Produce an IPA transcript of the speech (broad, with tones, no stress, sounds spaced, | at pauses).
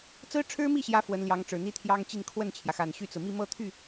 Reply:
t͡s ɹ̩˥ ʈ͡ʂʰ ɻ̩˥ m i˥˩ ɕ j ä˧˥ f w ə˧˥ n l j ɑ˧˥ ŋ ʈ͡ʂ ɻ̩˨˩ n̪ i˥ t̪ʰ j ɑ˥ ŋ t͡ɕ i˥˧ n kʰ w ə˥˩ n t͡ɕʰ j ä˩ x a˨˩ n ɕ y˥˩ t͡s ɹ̩˩ m i˥˧ m ɤ˥˧ t̪ʰ y˥˩